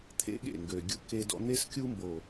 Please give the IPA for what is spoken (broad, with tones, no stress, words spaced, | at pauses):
t̪ʰḛ˦ɠḛ˦˨ŋɡø˨ɡʲṵ˦ ke˦dɔ̰˦ n̪e˦skʲu˦mbo˨